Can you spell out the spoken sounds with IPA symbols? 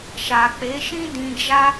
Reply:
ʃ a˨ k͡p e˨˦ ʃ ĩ˦ d ĩ˧ d͡ʒ a˦

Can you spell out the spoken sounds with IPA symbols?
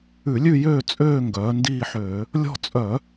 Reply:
ʉ˧˩˧ lʲ ʉ˦˨ j øː˦˨ t͡sʼ øː˦˨ ŋ ɡ œː˩˧ n d iː˦˨ ħ øː˧˩˧ | lʲ ɔ̤˦˨ t͡sʼ œ˧˩˧

